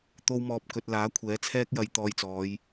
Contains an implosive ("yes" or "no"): no